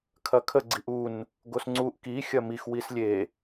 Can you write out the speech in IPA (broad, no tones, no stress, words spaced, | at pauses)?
kʰɐkʰə ɡ͡ǀiʔun | ɡosŋ͡ǀuʔ ki xʲɐmix wislʲe